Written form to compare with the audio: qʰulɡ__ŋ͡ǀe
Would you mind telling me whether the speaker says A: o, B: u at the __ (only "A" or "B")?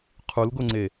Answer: A